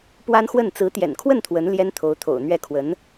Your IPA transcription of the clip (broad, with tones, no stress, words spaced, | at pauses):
pwa˥nxwə˥˩n t͡sɹ̩˧˥t̪jɛ̰˨˩nkʰwə˥˩n t̪ʰwə˧˥n ljɛ˥nt̪ʰo˧˥ʊ̯t̪ʰo̰˨˩ʊ̯n̪ɥɛ˥˩ kʰwə˧˥n